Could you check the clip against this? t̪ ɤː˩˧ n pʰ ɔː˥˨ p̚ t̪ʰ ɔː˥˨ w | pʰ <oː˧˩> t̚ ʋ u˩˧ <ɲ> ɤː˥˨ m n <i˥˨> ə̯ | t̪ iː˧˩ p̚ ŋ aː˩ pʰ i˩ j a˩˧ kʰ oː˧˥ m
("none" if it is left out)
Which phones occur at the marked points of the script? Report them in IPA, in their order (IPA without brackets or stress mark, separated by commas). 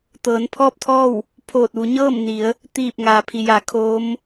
oː˧˩, ɲ, i˩˧